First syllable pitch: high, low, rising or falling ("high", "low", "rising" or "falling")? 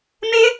high